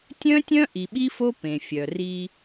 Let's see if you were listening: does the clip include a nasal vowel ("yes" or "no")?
yes